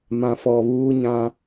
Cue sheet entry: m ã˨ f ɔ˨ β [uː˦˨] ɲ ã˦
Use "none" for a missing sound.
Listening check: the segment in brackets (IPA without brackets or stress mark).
uː˦